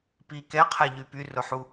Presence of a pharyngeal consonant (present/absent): present